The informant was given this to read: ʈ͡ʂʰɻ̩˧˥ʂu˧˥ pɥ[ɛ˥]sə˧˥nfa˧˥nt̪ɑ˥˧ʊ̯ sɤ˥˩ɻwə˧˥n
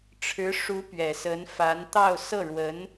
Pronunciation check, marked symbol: incorrect: ɛ˨˩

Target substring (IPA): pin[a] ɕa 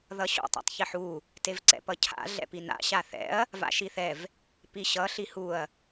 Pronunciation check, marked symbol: incorrect: a̰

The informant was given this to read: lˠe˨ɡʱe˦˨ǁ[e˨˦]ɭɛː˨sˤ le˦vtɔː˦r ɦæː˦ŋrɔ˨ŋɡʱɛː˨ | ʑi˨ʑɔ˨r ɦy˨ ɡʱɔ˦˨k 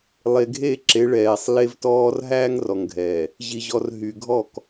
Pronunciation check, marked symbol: correct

